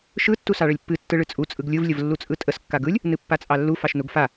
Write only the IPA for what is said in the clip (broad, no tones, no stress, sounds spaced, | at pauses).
ʃ ɯ tː u s ɑ ɭ ə lʲ pː ɨ tː ɯ ɭ ɨ t͡sʼ u t͡sʼ ɯ ɡ lʲ ɯ v lʲ ə v lː u t͡sʼ ɯ tʼ ə s kː a ɡ ɯ lʲ | n ɨ pː a t͡sʼ ɑ lː u f ɑ ʃ n u ɡ f a